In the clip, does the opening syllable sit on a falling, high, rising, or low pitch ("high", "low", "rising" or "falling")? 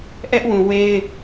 high